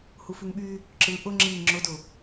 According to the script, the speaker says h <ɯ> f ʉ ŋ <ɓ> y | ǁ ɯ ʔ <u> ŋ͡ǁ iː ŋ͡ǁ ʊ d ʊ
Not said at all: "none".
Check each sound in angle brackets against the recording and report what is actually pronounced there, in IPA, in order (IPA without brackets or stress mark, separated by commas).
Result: u, ɓ, ʊ